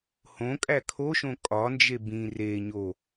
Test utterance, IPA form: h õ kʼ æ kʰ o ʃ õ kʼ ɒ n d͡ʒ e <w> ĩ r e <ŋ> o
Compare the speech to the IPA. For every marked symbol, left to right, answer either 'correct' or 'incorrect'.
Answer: incorrect: b, incorrect: ɲ

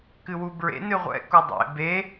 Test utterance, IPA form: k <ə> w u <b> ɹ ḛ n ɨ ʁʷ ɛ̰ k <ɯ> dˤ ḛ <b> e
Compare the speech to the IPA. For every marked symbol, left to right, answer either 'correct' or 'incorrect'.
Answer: incorrect: ɨ, correct, incorrect: u, correct

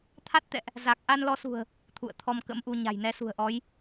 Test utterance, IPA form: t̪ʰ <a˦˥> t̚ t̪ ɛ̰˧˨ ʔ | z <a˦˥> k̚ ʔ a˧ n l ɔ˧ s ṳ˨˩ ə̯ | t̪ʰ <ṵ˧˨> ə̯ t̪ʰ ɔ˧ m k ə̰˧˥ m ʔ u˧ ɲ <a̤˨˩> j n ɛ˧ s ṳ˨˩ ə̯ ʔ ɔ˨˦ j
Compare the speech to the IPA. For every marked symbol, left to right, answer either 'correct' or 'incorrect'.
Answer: correct, incorrect: a˨˩, correct, correct

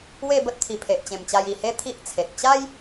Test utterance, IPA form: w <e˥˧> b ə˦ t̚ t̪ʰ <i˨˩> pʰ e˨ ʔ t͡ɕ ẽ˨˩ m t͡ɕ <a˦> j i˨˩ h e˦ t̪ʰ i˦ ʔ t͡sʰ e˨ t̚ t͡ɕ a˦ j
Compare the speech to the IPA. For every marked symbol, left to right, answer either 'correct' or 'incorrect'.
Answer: correct, correct, incorrect: a˧

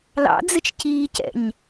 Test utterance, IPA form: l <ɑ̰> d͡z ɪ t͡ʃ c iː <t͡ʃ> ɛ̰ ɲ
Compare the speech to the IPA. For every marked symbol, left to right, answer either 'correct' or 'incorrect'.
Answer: correct, incorrect: c

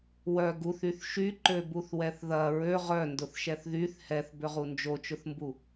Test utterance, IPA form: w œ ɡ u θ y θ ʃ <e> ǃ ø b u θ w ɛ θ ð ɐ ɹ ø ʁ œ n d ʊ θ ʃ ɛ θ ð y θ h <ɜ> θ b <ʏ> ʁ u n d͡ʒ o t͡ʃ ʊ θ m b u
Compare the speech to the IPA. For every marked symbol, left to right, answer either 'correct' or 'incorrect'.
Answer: incorrect: y, incorrect: ɛ, correct

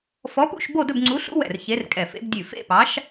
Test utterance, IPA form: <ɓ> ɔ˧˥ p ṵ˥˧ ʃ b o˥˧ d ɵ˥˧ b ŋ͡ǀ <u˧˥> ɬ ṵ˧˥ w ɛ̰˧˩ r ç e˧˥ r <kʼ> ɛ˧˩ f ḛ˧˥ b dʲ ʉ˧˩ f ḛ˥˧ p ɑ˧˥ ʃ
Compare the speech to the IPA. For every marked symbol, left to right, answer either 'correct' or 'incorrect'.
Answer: incorrect: f, correct, correct

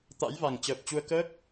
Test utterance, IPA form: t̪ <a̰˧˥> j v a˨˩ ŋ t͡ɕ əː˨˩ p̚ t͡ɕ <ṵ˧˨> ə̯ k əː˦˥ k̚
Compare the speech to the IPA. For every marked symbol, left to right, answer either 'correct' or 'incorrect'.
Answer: correct, incorrect: u˧

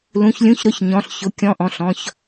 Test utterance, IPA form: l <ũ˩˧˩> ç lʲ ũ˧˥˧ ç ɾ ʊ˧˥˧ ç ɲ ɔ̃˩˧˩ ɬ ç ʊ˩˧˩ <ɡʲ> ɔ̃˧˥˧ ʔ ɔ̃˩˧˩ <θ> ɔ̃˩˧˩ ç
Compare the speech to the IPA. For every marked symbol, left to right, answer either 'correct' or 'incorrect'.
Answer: correct, incorrect: kʲ, incorrect: ɬ

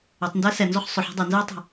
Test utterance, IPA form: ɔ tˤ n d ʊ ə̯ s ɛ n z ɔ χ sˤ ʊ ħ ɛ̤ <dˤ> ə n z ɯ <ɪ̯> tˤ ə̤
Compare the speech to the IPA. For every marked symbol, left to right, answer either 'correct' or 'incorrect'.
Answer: correct, incorrect: ə̯

